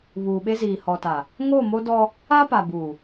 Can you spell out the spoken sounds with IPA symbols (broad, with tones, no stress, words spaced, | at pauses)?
βuː˨ɓe˦ziː˨ hɔ˨ta˨ | ŋo˦˨mo˦dɔ˦ | a˦ pa˨buː˨